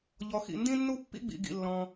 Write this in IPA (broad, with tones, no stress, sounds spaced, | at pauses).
ʎ ɔ˧ x ḭ˧ n d ĩ˥ nː u˥ pː ḭ˥ ɡ͡b ḭ˧ ɡ ḭ˧ lː ɔ̃˧